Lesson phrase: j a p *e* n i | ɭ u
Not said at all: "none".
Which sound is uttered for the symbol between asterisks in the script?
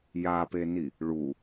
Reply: e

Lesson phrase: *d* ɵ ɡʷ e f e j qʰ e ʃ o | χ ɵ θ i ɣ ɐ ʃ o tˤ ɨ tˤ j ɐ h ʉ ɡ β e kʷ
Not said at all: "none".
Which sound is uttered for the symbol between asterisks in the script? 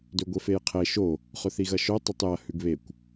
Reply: d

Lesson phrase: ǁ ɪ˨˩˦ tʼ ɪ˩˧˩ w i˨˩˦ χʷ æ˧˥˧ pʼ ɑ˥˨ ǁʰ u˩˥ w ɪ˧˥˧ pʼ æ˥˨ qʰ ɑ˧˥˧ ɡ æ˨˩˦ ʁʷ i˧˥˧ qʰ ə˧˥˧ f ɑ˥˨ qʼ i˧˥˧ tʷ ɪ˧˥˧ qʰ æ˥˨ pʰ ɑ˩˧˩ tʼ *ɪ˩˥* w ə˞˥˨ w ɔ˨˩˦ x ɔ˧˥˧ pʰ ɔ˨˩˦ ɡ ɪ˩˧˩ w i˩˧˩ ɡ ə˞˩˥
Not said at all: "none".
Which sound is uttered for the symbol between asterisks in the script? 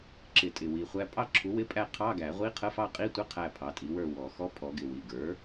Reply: i˩˥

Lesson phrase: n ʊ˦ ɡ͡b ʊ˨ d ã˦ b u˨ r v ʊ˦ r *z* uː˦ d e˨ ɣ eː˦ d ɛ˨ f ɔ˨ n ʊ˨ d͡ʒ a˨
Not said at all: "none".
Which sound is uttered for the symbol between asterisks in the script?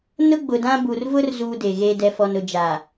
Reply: z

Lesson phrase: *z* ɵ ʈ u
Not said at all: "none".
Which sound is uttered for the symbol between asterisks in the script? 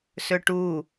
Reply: s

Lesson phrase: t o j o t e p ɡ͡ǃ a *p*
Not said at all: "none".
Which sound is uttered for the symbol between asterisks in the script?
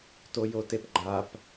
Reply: p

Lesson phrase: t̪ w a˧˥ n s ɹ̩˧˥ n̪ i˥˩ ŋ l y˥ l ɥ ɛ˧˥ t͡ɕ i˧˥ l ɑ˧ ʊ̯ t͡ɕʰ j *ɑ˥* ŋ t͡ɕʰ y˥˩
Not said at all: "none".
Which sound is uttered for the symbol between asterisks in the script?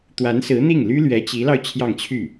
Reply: ɑ˥˧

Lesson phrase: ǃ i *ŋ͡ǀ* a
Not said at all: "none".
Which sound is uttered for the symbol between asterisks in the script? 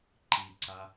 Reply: ǀ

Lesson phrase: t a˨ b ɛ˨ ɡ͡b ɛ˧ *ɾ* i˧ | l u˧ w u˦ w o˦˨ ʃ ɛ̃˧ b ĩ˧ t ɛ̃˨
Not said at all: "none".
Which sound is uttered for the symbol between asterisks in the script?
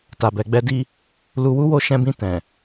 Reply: d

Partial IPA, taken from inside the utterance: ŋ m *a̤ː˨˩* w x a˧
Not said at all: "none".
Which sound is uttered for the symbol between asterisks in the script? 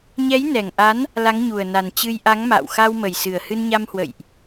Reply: a̰ː˧˨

